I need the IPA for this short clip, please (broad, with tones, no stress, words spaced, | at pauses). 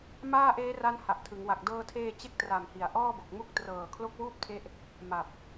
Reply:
maː˥˩ʔeː˦˥ra˦˥n ha˨˩ʔtʰɯ˩˦ŋwa˨˩k̚ dɤː˧tʰeː˧ t͡ɕe˥˩k̚tra˨˩mhi˩˦a̯ ʔɔː˥˩bo˨˩k̚mu˥˩k̚ trɤː˨˩kʰlo˦˥k̚wuː˥˩p̚tʰe˦˥ʔ | ma˨˩p̚